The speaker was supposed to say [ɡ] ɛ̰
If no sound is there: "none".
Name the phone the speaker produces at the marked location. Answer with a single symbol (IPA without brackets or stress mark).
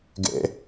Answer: ɡ